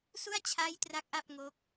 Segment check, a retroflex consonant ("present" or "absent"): absent